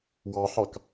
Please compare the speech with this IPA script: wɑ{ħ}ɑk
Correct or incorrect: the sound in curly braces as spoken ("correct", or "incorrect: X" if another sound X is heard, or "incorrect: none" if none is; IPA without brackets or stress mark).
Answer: correct